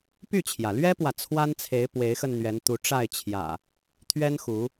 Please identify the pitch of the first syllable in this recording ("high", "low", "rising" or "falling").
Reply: falling